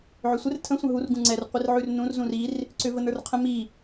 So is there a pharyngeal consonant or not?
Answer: yes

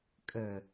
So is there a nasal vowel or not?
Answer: no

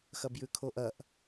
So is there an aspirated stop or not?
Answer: yes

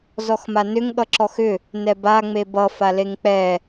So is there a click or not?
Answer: yes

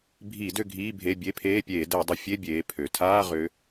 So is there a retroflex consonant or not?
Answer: no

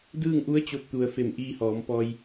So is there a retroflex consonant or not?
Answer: no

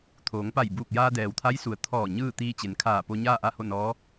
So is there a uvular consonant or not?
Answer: no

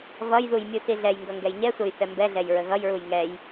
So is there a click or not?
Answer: no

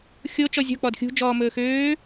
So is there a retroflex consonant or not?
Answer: no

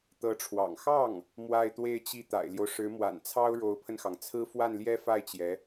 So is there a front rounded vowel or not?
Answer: no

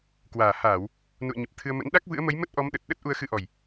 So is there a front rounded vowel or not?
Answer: no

